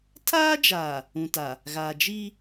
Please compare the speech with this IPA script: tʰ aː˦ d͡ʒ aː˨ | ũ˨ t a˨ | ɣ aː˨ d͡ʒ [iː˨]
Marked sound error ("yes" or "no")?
yes